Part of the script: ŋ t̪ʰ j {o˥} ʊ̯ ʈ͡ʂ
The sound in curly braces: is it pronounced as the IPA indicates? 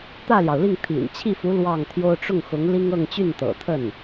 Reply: yes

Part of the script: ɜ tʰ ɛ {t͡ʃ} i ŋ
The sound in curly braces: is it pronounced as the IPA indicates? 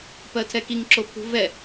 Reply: no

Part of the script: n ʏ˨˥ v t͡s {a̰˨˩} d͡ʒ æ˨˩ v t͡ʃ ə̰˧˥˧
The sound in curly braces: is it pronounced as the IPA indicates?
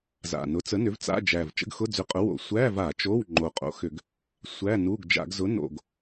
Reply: no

